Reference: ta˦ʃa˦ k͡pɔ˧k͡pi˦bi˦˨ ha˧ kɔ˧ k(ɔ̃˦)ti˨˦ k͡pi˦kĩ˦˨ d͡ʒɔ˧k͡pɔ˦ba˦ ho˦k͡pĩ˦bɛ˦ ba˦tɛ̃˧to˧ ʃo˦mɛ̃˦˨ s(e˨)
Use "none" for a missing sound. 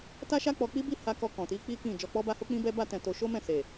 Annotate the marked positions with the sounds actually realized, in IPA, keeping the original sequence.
ɔ̃˨, e˨

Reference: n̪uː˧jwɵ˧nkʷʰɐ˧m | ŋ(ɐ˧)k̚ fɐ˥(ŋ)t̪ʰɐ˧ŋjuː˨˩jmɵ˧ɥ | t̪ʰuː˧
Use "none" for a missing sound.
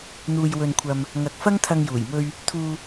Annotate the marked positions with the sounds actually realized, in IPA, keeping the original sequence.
ɐ˧, ŋ

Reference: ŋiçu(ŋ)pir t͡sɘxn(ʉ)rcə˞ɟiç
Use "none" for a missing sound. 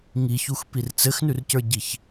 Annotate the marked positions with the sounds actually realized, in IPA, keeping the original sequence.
x, ʉ

